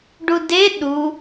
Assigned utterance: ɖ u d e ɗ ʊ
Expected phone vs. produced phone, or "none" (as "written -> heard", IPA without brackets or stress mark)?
ʊ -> u